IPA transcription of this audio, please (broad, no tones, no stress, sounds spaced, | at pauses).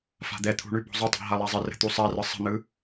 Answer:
f a̤ d̪ ɛ t̪ʰ ṳ ɳ ʉ b ɔ̤ zˤ ʏ tˤ a̤ ɦ a lˠ a zˤ ə r ə̤ t̪ u sˤ a r ɯ sˤ ə̤ n̪ ɯ